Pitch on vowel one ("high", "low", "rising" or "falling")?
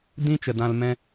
high